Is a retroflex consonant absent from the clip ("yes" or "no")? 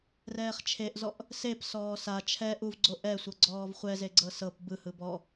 yes